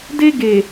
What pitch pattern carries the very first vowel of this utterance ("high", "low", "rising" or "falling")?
high